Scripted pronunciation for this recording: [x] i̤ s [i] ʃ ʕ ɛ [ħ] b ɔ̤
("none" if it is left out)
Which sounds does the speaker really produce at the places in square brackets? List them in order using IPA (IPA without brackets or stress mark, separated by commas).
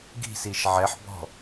ɡ, i, ħ